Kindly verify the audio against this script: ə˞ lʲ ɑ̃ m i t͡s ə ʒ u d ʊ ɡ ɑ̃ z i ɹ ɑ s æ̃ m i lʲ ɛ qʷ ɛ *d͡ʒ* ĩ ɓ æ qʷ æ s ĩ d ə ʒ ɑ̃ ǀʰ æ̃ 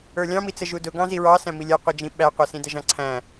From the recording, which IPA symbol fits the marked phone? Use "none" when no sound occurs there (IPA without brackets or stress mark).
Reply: d͡ʒ